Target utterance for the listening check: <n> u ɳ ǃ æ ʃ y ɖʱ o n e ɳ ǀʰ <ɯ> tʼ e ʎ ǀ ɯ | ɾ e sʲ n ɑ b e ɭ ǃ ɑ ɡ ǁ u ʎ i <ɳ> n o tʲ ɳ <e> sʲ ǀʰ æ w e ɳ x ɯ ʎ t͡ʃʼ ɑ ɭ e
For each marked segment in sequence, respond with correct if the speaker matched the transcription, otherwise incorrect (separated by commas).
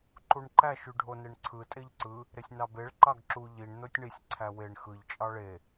incorrect, correct, correct, incorrect